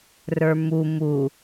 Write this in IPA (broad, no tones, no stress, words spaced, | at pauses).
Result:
rə˞mu mu